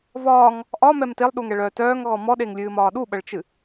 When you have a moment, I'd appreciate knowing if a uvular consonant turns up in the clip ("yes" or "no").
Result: no